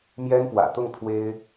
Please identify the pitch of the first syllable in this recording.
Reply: high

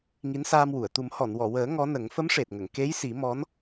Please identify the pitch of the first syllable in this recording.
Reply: rising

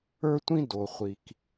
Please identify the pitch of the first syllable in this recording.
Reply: high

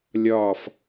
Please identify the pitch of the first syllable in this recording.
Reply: falling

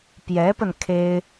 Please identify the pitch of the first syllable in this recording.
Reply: rising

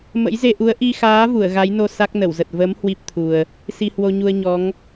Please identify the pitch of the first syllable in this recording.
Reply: rising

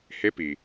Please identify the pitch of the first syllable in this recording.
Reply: rising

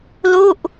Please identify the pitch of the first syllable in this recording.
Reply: falling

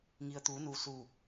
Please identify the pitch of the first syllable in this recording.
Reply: low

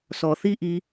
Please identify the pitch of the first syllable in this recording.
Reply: low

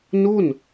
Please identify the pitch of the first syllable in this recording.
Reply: falling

